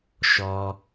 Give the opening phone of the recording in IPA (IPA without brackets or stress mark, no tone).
ʃ